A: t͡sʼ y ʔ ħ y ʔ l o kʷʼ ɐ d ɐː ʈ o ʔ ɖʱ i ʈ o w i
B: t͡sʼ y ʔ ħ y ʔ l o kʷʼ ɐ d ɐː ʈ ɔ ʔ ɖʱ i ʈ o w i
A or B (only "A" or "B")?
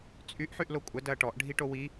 B